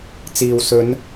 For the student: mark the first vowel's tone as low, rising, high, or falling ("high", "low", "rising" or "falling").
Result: low